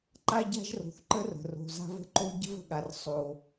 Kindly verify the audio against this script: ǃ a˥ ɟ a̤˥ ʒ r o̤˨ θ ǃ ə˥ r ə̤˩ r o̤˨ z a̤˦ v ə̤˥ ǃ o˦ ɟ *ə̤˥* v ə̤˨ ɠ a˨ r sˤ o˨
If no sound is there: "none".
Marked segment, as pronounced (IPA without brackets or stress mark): ə̤˥